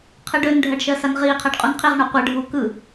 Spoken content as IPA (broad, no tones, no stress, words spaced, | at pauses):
qʰɯɖønɖʱɜɖ ʃɜsanʁiːqʰɜɖ qʼunqʰiʁɳo qʷɯɖʱuː kɯ